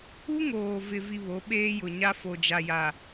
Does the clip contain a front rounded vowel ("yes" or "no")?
no